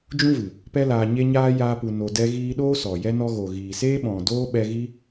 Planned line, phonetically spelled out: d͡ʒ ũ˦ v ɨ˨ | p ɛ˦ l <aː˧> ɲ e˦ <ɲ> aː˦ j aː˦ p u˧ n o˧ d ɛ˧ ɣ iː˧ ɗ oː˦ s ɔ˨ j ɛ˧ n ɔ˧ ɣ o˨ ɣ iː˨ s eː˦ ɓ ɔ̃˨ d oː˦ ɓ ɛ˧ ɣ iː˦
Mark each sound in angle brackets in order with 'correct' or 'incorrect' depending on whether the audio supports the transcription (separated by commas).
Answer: correct, correct